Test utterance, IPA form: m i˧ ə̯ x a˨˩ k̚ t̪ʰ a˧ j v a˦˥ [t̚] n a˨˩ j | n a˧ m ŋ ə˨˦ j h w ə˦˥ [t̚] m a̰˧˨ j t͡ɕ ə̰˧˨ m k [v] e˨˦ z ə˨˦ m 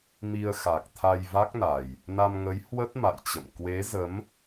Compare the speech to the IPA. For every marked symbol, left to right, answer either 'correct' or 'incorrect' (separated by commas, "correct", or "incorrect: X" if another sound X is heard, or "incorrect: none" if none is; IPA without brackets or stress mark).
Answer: incorrect: k̚, correct, incorrect: w